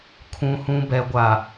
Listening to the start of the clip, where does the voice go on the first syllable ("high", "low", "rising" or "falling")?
low